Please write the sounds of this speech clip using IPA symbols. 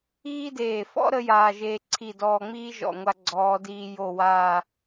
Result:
iː˥ d eː˧˩ f ɔ̰˥ ɾ ə˥ j aː˧ ʒ eː˧ ǀʰ i˧˩ d ɔː˧ ŋ͡m iː˥ ʒ ɔ̰˧˩ ŋʷ a˧ ɡ͡ǀ ɔː˩˧ d iː˧ j o˧˩ w aː˧˩

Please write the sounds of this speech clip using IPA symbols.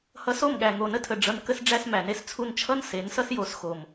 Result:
h ʌ˧ s o˦˨ m ɠ æ˨ ŋ o˨ n ə˧ tʰ ə˨ ɖ͡ʐ ʌ˧ n k ə˧ s ɖ͡ʐ æ˧ s m æ˨ n e˧ s t͡sʰ u˧ n t͡ʃʰ ʌ˦ n s e˨˦ n s ʌ˦ s j o˨˦ s x o˨ m

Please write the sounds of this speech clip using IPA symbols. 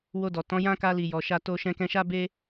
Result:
w o˧ d ɔ˨ t ɔ̃˨˦ j ã˦ k a˧ l i˨ j ɔ˨ ʃ a˧ t o˧ ʃ ɛ̃˧ k ɛ̃˧ ʃ a˦ b e˦

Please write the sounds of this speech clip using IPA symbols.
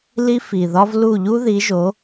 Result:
l i˦ f i˨˩ ð ɒ˦ v l u˦˨ ʎ u˦ ð i˨˦ ʒ o˨˦

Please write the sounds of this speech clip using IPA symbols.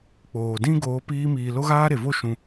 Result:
k͡p oː˨ d ĩ˦ ɡ oː˨˦ p iː˧ m iː˨ l o˦ ɣ aː˦ ɾ e˨ v o˦ ʃ ũ˧

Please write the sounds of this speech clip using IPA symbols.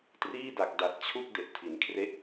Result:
t r iː˥˩ d a˨˩ k̚ d a˨˩ t̚ t͡ɕʰ u˥˩ k̚ d e˨˩ ʔ tʰ i˩˦ n kʰ r e˦˥ ʔ

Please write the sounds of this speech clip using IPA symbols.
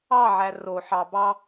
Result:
ɑ ʕ æ r o ħ ɑ b ɑ

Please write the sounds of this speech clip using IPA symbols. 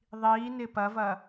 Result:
ðˤ i n ɪ p ɐ v ɐ

